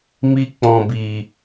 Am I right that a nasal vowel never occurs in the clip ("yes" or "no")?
no